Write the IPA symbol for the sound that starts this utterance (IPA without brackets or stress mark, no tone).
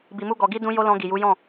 b